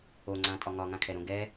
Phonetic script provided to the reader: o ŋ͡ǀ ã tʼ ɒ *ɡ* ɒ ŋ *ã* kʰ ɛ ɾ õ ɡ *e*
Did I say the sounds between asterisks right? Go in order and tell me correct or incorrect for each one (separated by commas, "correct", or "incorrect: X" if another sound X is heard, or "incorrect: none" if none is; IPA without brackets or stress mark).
incorrect: ŋ, correct, incorrect: ɛ